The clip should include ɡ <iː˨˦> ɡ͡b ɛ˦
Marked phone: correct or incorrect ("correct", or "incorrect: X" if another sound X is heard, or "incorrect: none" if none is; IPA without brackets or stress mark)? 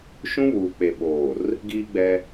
incorrect: iː˦